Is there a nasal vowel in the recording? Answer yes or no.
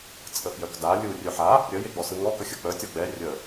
no